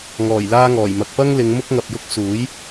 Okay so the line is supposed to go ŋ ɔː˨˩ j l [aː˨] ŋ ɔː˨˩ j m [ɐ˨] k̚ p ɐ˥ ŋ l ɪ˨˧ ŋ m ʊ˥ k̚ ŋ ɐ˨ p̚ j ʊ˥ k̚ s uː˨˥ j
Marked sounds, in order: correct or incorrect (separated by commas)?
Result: incorrect, correct